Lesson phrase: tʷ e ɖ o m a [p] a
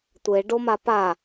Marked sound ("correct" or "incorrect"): correct